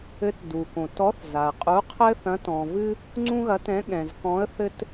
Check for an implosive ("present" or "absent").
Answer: present